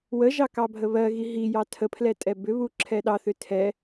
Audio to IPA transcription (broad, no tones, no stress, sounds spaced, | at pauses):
w ə ʒ ɑ k ɑ bʱ ə β ɜ ɣ i ɦ i j ɑ tʰ ə pʰ l ɛ tʼ ɛ b ʏ β u ǁʰ ɛ ɗ ɑ θ ʏ tʰ ɛ